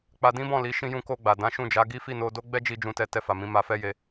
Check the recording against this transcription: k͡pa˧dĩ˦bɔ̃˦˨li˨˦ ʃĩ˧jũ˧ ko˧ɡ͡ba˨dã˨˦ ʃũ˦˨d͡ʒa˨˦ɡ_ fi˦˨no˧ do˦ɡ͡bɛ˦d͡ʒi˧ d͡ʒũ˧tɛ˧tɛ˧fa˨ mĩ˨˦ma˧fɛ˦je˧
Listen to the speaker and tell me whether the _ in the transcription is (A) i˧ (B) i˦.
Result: B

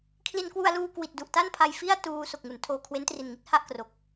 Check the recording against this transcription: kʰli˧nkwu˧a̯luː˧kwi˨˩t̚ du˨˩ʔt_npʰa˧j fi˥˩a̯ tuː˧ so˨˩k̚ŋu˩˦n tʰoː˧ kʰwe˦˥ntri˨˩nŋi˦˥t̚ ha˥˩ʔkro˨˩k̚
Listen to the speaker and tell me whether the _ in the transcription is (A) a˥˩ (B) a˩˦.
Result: A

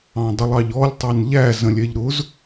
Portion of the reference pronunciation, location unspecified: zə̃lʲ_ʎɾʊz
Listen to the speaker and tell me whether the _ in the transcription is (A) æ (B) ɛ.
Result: B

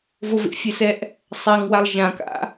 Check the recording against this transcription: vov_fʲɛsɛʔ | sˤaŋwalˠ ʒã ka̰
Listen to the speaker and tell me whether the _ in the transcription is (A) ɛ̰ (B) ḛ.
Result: B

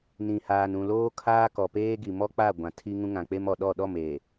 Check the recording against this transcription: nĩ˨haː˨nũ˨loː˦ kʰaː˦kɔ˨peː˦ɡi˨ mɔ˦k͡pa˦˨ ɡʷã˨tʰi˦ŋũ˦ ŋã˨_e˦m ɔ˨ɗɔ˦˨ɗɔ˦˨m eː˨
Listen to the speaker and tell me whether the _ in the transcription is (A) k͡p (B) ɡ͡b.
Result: A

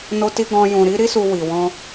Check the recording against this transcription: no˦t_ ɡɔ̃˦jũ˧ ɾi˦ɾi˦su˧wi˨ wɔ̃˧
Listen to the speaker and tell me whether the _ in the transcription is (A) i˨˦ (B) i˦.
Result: B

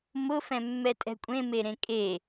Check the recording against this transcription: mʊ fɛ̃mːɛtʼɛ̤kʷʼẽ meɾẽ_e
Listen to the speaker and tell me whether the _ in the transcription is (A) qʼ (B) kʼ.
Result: B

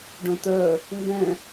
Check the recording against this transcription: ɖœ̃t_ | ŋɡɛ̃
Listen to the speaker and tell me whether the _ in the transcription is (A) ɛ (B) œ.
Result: B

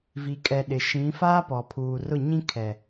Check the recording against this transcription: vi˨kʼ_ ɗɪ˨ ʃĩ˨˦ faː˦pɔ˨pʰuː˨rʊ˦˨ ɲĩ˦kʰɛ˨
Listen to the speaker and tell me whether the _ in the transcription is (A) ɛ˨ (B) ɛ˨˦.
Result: A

